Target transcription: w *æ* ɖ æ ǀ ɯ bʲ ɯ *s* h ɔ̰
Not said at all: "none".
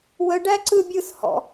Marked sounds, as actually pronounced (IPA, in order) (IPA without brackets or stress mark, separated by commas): ə, s